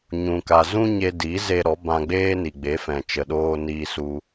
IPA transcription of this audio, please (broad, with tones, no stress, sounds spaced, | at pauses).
ɲ ũ˨ k a˨ z ũ˦ ɲ e˧ d i˨˦ z e˧ ɾ ɔ˨˦ b ã˧ ɡ͡b eː˦ n i˨ ɡ͡b e˨˦ f ɛ̃˨ t͡ʃ ə˨ ɗ oː˧ n iː˧ s u˧